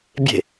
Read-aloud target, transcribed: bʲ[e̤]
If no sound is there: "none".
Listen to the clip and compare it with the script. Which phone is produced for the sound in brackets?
e̤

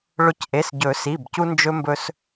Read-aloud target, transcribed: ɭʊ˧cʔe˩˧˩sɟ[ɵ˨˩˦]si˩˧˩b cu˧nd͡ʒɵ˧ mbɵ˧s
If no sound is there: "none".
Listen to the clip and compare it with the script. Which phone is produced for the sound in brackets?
ɵ˨˩˦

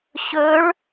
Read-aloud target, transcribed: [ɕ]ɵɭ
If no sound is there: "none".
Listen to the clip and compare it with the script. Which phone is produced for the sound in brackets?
ɕ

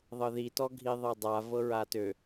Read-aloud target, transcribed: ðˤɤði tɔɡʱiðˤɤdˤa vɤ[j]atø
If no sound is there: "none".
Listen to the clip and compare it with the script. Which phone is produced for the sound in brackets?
ɹ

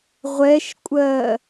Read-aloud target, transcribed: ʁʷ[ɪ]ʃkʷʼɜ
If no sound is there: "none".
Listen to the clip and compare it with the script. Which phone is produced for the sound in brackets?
ɛ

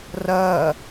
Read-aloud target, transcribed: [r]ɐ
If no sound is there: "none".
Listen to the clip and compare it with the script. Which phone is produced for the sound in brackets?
r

